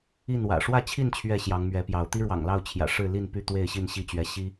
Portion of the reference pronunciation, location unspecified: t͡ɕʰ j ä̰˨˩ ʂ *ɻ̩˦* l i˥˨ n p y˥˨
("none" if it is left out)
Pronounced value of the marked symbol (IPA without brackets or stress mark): ɻ̩˥˨